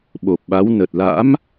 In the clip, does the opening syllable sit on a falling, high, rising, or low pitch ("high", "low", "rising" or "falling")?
low